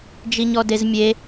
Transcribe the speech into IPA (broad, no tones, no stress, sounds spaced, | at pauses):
d͡ʒ i ɲ ɔ d e z mʲ e